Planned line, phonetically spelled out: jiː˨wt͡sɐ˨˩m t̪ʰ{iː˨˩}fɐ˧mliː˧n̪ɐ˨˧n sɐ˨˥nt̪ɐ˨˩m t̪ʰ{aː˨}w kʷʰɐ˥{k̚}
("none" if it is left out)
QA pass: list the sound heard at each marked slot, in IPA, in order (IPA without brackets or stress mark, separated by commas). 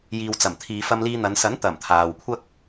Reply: iː˨, aː˨, k̚